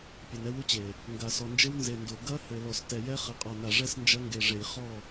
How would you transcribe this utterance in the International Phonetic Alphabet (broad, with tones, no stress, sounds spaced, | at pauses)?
pʲ ɛ˨ n ɛ˦ w u˦ t͡ɕ e˨ | ŋ ɡ a˨ s ɔ˨ n d͡ʒ ɘ˦ w n z e˨ n d o˨ ɡ ɐ˦ h ɘ˨ l ɔ˨ s t ɛ˨ j ɛ˦ χ ɘ˨ qʼ ɔ˨ n a˨ ʐ ɛ˦ s n d͡ʒ ɐ˦ ŋ ɡ e˨ ʐ e˨ j χ ɔ˦˨